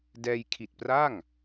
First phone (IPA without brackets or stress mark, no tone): d